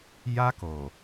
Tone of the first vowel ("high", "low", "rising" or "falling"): high